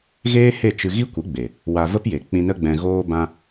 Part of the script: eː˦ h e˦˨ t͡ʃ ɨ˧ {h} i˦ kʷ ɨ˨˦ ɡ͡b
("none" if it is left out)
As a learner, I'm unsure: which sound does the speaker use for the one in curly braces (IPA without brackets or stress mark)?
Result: ɣ